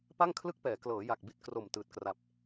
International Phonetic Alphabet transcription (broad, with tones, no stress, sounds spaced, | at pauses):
p a˥˩ ŋ kʰ l ɯ˥˩ k̚ p ɛː˩˦ k l ɤː˩˦ j a˨˩ k̚ b i˥˩ t̚ k r o˨˩ m t ɯː˨˩ t̚ k r a˨˩ p̚